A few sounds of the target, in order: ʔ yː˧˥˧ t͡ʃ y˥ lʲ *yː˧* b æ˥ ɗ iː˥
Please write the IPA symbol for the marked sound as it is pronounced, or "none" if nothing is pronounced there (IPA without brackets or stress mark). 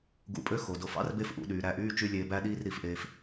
eː˧